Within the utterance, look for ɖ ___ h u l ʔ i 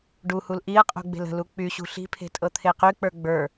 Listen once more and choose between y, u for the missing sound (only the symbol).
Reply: u